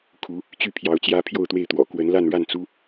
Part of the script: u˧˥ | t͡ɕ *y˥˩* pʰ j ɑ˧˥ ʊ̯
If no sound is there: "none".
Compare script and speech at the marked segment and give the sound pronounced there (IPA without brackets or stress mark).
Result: y˥˩